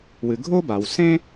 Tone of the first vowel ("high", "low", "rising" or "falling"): low